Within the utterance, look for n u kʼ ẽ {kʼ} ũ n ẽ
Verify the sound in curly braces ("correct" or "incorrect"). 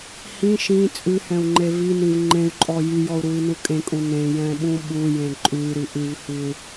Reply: correct